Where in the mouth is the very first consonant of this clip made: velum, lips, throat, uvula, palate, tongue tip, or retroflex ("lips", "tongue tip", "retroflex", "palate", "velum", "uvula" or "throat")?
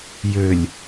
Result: palate